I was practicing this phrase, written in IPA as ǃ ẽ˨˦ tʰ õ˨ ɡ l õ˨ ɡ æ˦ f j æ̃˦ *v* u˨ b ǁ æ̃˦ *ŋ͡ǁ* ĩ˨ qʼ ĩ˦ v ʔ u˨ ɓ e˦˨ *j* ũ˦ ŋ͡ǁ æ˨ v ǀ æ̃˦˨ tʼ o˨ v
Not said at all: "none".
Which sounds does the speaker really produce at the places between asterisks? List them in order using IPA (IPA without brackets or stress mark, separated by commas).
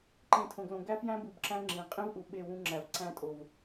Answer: b, ŋ͡ǁ, w